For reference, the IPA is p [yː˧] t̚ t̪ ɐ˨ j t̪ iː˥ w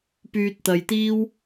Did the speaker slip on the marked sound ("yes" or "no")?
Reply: no